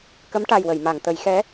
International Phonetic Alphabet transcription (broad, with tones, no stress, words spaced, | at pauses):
kə˧˥mʈa˨˩jwə˨˩˨jma˨˩˨ŋ t̪ə˨˩˦jxɛ˧˥